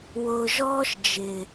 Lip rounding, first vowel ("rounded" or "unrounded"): rounded